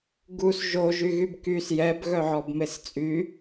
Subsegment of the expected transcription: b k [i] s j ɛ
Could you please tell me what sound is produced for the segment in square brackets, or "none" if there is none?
y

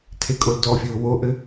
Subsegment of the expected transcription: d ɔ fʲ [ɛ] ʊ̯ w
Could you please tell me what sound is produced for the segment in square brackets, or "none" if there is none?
ɘ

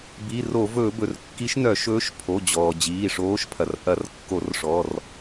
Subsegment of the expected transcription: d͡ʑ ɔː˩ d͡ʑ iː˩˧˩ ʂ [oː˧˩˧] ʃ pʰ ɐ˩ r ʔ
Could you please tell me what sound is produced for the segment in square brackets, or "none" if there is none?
oː˧˥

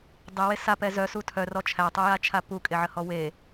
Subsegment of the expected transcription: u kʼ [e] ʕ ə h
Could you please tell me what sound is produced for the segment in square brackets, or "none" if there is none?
e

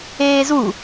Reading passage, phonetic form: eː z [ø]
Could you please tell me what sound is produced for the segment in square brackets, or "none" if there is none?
u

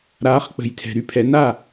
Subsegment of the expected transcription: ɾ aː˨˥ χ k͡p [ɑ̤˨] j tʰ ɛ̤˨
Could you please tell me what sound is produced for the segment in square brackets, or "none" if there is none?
ə̤˨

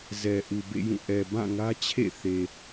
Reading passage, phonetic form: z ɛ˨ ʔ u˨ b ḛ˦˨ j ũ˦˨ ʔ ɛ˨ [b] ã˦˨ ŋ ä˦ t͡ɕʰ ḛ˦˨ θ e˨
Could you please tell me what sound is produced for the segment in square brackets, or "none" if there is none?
b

